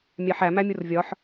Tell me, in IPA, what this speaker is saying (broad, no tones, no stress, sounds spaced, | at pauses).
mʲ æ ħ æ m æ mʲ u r vʲ ɒ ħ